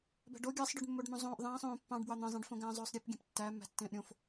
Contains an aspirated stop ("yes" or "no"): no